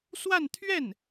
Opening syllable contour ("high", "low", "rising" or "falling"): falling